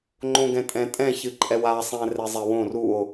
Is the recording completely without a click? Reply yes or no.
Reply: no